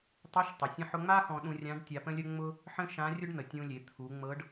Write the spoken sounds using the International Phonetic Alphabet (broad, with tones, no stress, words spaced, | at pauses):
tˤe˧˥ʃtˤʊ˩ sʲə̃˧ħʊ˧ŋ͡ma˥ xɔ̃˧ɗũ˧rʲã˧˥ɖ tʲa˧pə̃˥lʲə˥ ŋ͡mʊ˥ | ħə̃˥ʃã˧˥rʲʊ˥ɖn̪ə˩ tʲũ˧lʲe˩˧ t̪ʰu˩˧ŋ͡mɤ˧˥ɖ